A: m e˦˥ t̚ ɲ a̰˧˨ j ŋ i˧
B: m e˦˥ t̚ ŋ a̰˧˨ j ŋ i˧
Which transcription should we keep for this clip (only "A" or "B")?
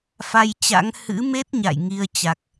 A